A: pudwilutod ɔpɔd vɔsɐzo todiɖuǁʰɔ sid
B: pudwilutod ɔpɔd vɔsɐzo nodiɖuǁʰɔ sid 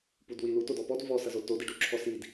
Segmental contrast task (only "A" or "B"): A